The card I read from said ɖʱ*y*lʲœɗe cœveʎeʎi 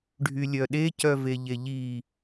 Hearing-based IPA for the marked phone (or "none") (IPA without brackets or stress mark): y